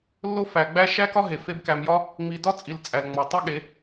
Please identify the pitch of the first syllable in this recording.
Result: high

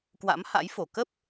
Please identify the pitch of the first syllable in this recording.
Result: rising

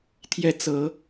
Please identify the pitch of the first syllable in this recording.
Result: rising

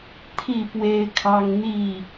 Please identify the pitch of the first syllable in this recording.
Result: falling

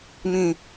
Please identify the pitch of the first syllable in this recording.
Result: low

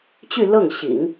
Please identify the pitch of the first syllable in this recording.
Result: falling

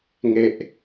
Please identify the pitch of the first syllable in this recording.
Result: falling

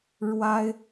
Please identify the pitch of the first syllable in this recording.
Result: high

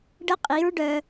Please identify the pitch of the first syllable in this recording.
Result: high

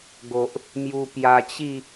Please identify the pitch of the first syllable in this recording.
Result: low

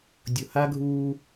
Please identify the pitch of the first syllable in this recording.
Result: low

